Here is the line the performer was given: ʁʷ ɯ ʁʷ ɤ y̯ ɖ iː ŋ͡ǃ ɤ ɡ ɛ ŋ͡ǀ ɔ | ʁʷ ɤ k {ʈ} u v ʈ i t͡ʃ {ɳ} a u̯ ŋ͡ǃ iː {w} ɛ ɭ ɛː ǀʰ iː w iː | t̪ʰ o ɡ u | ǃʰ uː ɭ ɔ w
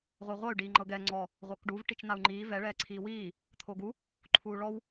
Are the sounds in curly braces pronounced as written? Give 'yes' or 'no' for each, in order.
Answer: no, no, no

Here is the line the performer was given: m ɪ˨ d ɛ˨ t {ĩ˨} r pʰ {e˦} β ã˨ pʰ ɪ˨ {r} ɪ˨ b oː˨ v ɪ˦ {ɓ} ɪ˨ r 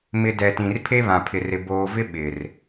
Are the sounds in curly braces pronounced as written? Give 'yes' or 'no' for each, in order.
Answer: yes, yes, yes, yes

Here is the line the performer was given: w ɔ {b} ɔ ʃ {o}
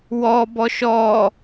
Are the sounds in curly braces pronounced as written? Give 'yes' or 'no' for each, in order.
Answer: yes, no

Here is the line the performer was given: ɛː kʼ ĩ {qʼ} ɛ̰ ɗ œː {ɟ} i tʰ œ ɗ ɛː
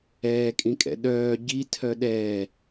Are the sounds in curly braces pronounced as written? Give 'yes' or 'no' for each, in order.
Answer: no, yes

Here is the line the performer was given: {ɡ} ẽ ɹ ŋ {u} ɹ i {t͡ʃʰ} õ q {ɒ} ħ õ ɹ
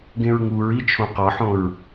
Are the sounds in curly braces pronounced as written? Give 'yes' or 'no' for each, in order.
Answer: yes, yes, yes, yes

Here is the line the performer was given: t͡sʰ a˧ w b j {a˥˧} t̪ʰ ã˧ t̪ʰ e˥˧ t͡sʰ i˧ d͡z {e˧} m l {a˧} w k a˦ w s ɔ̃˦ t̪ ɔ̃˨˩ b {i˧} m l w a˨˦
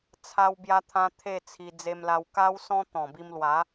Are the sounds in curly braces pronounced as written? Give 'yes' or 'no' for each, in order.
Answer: no, yes, yes, yes

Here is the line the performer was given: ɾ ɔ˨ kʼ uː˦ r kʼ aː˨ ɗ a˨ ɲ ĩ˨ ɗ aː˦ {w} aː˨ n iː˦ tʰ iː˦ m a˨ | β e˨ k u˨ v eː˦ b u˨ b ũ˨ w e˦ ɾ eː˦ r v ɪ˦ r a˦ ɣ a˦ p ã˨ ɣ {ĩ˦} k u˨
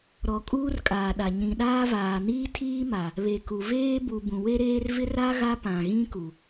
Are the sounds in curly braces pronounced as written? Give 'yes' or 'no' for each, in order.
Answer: no, yes

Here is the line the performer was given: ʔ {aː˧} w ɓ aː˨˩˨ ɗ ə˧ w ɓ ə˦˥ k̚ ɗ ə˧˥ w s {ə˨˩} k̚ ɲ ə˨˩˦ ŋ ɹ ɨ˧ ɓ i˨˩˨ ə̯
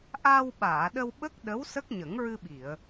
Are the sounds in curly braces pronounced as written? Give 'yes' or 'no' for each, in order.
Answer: yes, no

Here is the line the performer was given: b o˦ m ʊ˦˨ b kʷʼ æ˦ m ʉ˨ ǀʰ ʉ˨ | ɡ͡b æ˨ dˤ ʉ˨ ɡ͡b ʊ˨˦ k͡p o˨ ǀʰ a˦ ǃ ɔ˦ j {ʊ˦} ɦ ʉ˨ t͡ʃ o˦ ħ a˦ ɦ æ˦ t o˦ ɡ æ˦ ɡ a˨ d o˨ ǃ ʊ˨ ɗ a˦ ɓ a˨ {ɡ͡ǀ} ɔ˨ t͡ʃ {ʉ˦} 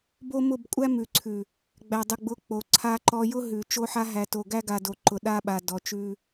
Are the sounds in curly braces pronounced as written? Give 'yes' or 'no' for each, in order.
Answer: yes, no, yes

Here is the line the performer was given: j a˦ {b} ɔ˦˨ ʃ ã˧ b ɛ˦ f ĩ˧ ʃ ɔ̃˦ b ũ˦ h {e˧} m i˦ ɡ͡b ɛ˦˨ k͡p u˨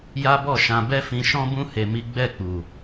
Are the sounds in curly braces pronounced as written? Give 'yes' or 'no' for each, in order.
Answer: yes, yes

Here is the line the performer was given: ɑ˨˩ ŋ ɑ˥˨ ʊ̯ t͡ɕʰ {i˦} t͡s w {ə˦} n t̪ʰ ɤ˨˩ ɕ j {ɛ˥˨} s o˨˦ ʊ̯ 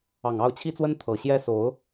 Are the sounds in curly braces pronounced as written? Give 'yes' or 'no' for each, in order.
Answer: yes, yes, no

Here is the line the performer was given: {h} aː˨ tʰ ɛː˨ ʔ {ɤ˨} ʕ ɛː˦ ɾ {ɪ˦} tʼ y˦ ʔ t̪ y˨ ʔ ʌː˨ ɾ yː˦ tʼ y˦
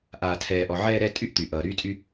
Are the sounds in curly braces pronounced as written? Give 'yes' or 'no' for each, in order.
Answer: no, no, no

